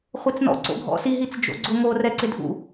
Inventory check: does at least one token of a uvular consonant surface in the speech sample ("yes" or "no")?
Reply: yes